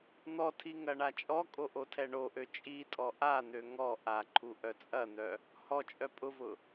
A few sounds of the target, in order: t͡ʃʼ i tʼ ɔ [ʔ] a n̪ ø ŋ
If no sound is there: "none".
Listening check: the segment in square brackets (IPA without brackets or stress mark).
ʔ